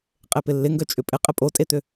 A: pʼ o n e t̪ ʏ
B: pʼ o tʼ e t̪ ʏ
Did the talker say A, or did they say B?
B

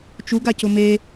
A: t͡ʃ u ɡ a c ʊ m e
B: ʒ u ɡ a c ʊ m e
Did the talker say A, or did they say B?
A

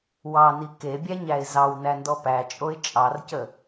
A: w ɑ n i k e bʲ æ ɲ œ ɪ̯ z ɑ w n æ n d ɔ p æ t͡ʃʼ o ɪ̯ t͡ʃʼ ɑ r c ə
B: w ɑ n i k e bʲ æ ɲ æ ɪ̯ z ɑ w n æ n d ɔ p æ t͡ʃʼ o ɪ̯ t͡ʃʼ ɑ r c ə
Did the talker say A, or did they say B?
B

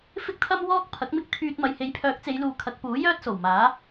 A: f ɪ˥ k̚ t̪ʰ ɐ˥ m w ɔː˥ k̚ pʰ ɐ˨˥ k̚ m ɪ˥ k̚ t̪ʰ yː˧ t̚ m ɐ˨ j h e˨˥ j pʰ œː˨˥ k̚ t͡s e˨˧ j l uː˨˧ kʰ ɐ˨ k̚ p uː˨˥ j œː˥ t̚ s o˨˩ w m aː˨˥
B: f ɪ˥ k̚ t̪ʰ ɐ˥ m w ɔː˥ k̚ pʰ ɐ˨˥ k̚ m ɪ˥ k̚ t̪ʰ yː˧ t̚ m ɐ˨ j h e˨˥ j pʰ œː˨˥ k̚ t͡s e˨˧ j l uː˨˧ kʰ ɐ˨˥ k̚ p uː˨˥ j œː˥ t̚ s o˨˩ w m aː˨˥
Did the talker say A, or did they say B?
B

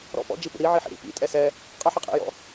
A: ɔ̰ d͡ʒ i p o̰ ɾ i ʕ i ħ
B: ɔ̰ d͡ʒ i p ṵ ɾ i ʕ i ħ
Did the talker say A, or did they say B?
B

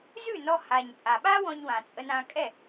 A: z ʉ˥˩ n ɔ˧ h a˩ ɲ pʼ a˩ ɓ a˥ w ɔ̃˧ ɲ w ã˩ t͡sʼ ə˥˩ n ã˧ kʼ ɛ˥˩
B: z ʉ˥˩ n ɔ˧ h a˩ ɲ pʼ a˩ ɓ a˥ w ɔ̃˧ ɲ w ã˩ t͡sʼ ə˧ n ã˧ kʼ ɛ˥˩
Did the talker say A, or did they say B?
B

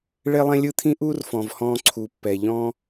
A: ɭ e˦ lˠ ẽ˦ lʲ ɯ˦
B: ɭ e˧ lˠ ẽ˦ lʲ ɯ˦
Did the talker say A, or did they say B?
A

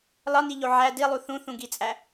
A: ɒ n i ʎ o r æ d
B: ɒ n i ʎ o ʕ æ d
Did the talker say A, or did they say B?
B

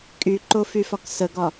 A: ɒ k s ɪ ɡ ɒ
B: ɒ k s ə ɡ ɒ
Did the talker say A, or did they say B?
B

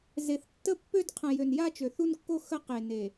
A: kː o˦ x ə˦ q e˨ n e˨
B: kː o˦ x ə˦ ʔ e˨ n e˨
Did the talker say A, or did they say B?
A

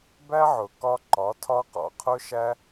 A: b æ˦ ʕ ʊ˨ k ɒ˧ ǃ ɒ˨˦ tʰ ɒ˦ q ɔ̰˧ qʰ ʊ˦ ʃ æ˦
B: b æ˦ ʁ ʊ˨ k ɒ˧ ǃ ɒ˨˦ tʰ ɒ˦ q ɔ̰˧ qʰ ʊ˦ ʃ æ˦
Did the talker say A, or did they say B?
A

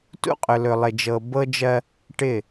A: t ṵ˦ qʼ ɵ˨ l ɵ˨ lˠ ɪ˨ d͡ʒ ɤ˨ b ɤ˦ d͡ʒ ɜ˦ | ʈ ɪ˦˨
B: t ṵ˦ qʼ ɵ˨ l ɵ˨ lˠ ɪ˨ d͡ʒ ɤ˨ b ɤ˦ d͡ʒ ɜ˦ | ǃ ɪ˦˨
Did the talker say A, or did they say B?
A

